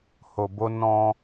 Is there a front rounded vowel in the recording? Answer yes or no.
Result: no